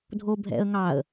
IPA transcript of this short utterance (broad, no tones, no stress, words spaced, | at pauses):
dʱobʱɛ̰ə̯ŋɑə̯